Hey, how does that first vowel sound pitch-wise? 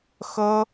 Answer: high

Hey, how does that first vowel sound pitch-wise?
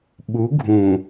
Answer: rising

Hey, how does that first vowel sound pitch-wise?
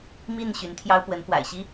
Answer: falling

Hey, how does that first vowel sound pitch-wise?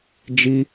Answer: high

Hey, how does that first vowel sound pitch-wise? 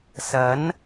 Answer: rising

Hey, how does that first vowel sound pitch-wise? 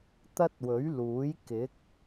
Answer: high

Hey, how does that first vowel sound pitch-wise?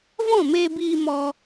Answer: falling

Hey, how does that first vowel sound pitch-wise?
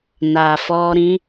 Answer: low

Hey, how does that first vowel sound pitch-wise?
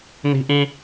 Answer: high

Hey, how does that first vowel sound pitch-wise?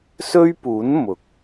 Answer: high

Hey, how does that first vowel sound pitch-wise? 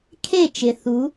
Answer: falling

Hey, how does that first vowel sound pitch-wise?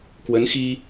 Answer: rising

